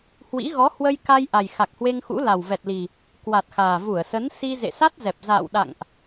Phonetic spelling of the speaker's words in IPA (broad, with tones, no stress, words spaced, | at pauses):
hwḭ˧˥ɣɔ˨˦ hwə˧jka˧j ʔa˨˩j xa˨˩k̚hwe˧ŋxṵ˧˥ la˨˩wvɛ˨˩t̚li˨˩ | kwa˨˩t̚xaː˨˩vu˧˩ə̯sə˨˦n si˧ zḛ˧˨sa˦˥t̚zɛ˨˩p̚ za̰ː˧˨wɗa̰˧˨ŋʔ